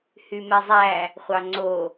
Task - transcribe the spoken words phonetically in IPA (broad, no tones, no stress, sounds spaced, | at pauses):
h y m ɛ zˤ æ | χʷ ɑ ŋ͡ǀ o